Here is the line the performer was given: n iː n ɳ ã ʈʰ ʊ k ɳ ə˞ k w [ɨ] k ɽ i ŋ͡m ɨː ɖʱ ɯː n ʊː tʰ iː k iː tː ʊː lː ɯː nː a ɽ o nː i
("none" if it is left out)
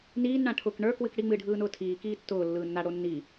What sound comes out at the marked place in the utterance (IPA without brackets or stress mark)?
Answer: ɨ